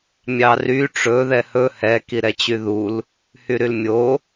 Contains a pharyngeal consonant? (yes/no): no